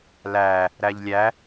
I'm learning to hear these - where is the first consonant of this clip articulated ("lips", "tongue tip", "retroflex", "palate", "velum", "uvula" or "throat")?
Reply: tongue tip